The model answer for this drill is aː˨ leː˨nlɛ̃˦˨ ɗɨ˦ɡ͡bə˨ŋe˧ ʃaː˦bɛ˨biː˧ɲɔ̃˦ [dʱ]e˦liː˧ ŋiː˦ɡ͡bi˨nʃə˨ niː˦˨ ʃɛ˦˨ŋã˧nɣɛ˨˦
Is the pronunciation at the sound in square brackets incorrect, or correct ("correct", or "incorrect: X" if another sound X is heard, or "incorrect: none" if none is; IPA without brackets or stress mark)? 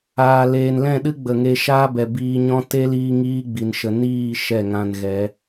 incorrect: t